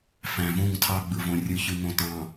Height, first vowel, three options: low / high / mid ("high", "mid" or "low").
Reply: low